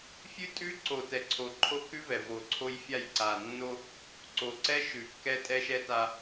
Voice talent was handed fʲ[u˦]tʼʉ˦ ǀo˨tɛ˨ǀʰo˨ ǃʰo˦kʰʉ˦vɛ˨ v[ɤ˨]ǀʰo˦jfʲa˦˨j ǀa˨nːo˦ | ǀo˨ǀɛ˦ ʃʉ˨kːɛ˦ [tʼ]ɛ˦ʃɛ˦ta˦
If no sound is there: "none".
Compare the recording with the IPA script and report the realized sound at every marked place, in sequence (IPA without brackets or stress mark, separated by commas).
ʉ˦, o˨, tʼ